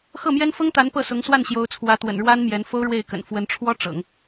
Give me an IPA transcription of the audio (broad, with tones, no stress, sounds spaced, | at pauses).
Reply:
x ɤ˥˩ m j ɛ˥ n f ɤ˥ ŋ t̪ a˧˥ n p ɤ˥˩ s ʊ˧˥ ŋ s w a˥˩ n ɕ j o˧˥ ʊ̯ t͡sʰ w ä˧˥ t̪ w ə̰˨˩ n ɻ w a˥ n m j ɛ˧˥ n f o˥ ʊ̯ ɻ w e˥˩ ɪ̯ k ə̰˨˩ n f w ə˧˥ n ʈ͡ʂʰ w ɔ˥ ʈ͡ʂ ɤ̰˨˩˦ ŋ